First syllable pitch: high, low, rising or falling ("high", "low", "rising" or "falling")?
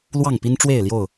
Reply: falling